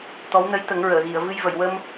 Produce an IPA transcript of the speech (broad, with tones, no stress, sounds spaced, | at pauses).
t̪ ɔ˧˥ w n ə˧˥ j t̪ ə˨˩˦ ŋ ɹ əː˨˩˨ ɣ i˨˩˨ ə̯ v ɨ˧ j v ə˨˩˨ j w ə˧ m